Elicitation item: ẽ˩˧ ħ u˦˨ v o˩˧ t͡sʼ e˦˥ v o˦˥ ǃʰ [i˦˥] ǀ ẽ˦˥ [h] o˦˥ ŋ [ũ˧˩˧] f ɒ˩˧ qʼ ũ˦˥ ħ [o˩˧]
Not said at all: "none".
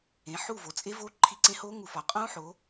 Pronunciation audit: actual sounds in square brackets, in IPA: i˦˨, h, u˧˩˧, o˩˧

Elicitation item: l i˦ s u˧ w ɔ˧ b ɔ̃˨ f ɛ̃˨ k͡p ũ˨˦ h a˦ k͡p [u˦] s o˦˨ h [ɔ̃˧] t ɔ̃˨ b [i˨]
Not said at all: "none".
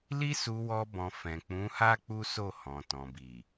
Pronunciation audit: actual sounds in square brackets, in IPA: u˦, ɔ̃˨, i˨

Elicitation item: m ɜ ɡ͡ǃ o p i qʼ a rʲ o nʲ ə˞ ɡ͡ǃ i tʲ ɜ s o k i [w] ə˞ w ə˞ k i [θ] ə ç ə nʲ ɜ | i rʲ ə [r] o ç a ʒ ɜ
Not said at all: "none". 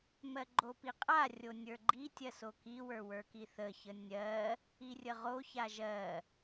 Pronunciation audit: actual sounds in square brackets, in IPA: w, θ, ʁ

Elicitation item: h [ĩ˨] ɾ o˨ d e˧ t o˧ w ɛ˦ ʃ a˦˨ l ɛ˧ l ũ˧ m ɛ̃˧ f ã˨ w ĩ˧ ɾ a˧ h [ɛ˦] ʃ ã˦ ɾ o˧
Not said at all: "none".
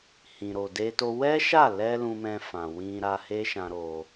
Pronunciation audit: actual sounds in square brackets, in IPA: ĩ˨, e˦

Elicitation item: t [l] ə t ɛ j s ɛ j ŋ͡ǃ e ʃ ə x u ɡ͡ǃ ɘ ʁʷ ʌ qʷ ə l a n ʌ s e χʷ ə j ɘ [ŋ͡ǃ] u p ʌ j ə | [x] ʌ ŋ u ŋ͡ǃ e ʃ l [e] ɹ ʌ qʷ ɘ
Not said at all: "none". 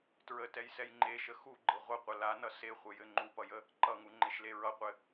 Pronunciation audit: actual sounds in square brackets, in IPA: ɹ, ŋ͡ǃ, ǃ, e

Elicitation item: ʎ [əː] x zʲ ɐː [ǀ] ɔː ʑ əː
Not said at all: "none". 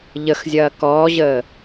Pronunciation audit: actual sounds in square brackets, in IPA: ə, k

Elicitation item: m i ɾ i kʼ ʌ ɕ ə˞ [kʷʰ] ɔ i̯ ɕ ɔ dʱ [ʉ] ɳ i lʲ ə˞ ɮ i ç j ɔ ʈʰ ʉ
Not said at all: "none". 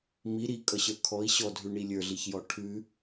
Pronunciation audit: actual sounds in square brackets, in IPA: kʰ, ʉ

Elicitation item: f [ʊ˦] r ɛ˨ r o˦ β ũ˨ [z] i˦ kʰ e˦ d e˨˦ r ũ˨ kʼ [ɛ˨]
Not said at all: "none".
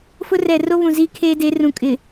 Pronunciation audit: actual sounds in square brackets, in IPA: ʊ˦, z, ɪ˨

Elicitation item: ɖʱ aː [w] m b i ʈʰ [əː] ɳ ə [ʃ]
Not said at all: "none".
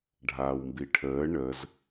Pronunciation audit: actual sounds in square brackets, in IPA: w, əː, z

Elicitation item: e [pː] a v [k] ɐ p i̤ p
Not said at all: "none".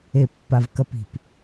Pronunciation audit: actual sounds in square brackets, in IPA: pː, k

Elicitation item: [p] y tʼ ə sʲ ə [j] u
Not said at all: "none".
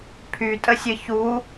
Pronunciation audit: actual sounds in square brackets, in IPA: pʰ, ç

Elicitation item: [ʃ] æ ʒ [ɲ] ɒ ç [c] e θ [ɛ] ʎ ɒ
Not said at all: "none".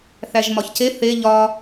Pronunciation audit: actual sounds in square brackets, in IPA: θ, m, c, e

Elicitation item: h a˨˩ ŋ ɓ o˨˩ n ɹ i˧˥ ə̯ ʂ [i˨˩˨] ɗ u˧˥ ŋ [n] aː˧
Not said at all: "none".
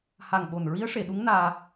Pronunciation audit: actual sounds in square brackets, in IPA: e˨˩˨, n

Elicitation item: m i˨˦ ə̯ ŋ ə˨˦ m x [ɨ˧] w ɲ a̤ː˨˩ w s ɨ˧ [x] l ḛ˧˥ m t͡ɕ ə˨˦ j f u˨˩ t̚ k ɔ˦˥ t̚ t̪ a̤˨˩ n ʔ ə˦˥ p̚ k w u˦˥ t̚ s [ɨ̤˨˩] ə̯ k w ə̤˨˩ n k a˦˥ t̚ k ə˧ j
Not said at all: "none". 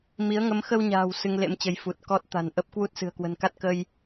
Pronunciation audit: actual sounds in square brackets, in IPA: ə˧, ŋ, ɨ̤˨˩

